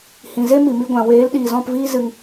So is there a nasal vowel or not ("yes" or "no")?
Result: yes